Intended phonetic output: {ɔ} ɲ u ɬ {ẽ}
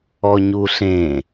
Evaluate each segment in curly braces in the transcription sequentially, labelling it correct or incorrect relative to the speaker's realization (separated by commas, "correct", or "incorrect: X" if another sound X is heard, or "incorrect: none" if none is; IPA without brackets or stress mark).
correct, correct